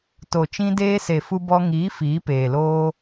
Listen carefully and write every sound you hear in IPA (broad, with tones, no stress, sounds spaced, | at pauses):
t o˨ t͡ʃ ĩ˧ d eː˧ s e˨ f u˧ b ɔ˧ ŋ iː˨˦ f iː˨˦ p eː˨ l oː˦